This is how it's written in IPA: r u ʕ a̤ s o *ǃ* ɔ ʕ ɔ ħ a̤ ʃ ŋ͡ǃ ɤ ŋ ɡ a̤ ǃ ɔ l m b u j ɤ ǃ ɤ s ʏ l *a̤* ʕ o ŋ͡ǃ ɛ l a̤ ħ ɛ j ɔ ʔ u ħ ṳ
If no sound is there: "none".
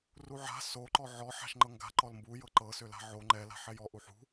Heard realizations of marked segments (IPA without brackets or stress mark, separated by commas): ǃ, a̤